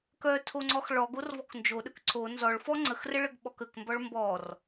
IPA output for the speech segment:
k œ tʰ o ŋ͡ǀ ɔ x ɭ ɔ ɡ o r v ɔ k n d͡ʒ o ɗ ə k ǀ o n z ɔ ɭ f ɔ ŋ͡ǀ ə x r ə ɭ ə ɡ ɓ ɔ k ə k m b ɔ ɭ m b ɔ r

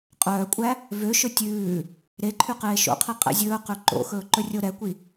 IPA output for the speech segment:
qʼ œː kʷʼ æ | v ø ʃ ɵ tʲ ʉː | ɾ e ǃʰ y q eː ʃ o̰ qʰ i qʼ ɛ̰ zʲ ɵː q ø ǃ o̰ x ɵː ǃ ɵ rʲ o ɾ ɛ kʷ i

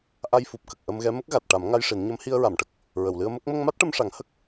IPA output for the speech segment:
ʔ a˧ j f u˨˩ p̚ k ə˨˩ k̚ ʔ ə˧ m ɣ ɛ˧˥ m ə˦˥ k̚ ɣ a˨˩ t̚ ʈ a˨˩˦ m ŋ a˧ j ʂ i˨˩˦ n ɲ ə˧˥ m h i˧ ə̯ ɹ a˨˩˨ m ʈ ə˨˩ k̚ | ɹ ə˨˩˨ w l ɨ˧ ə̯ m ə˦˥ k̚ m ə˧ ŋ m a˦˥ t̚ ʈ ə˧ m ʂ a˨˩˦ ŋ h ə˦˥ k̚

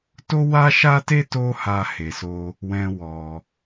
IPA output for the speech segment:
t o˦ w a˦ ʃ a˦ t e˦ t o˦ h a˧ h e˨ s o˧ | w ɛ̃˦ w ɔ˧

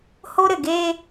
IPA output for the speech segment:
h o˦ ɾ ɘ˨ ɡ e˦

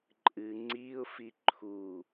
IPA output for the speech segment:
ǃʼ ɨ ŋ͡ǀ i ʊ̯ f i ǃʰ u

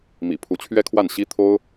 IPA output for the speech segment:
m ḭ˨˩ pʰ u˧˥ t͡ɕʰ ɥ ɛ˥ kʰ w a˥˩ n ɕ i˥ t̪ʰ o˥ ʊ̯

